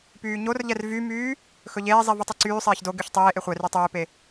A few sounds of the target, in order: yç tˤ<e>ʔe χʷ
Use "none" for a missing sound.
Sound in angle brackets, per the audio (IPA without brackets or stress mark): eː